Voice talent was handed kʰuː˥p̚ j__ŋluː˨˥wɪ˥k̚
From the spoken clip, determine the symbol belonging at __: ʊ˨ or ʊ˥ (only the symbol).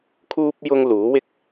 ʊ˥